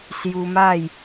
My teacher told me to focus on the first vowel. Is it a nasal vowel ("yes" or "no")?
no